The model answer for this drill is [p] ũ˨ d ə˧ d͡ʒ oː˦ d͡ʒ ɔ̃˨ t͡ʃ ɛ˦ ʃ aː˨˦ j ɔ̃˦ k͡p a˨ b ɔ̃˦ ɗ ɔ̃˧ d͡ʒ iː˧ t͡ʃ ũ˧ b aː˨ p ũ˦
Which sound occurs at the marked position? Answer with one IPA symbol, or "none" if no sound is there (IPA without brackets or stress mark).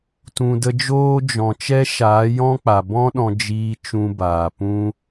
t